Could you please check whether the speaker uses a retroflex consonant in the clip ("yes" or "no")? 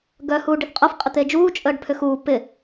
yes